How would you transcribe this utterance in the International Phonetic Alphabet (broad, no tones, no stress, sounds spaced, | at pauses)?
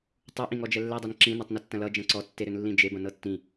tˤ u ʔ ĩ ŋ ɔ d͡ʒ ɛ lː ɛ dˤ ɛ n ǁ ĩ n ɤ tˤ n ʌ tː ɐ̃ l ʌ d͡ʒ ɐ̃ ǀ ɔ tː e ɾ ʏ n lː ĩ d͡ʒ e b ɐ̃ n ɤ tː ĩ